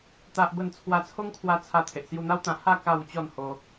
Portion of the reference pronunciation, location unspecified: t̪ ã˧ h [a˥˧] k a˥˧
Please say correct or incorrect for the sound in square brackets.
correct